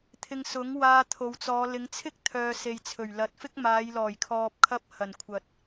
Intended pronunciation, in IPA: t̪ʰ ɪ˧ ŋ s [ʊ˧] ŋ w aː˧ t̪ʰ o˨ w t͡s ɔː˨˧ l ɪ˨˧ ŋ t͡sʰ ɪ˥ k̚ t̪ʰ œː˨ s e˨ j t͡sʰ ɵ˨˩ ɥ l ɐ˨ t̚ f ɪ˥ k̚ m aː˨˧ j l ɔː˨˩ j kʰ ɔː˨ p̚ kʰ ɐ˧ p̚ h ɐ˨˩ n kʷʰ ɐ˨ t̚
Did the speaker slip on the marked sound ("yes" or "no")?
yes